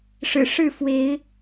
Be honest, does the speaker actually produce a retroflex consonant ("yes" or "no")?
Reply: yes